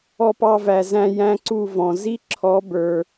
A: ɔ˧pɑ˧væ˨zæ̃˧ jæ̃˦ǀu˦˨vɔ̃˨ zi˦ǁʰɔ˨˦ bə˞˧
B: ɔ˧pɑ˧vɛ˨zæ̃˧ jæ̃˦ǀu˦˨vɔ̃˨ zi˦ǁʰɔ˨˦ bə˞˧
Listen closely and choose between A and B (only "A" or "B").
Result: A